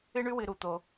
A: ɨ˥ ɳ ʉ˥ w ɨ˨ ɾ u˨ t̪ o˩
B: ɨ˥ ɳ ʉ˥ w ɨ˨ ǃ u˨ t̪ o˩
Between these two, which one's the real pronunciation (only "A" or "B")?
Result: A